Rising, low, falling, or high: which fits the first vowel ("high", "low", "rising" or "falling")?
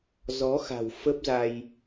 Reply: rising